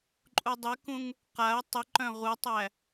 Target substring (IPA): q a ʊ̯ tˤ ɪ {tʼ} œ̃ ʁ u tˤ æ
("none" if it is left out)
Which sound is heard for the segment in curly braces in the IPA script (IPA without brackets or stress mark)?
ǃ